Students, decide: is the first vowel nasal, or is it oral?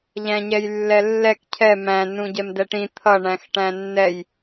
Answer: nasal